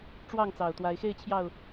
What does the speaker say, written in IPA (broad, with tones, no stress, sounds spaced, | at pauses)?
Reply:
ʈ͡ʂ w ɑ˥˨ ŋ t͡s ɑ˨˩ ʊ̯ t̪ w a˨˦ ɪ̯ x e˥˨ ɪ̯ t͡ɕʰ j ɑ˥˨ ʊ̯